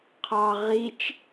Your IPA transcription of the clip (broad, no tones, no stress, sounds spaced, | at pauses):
qʰ ɑ ʁ i t͡ʃ